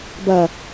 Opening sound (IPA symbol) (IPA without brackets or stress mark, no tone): b